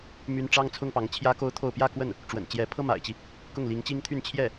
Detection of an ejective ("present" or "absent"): absent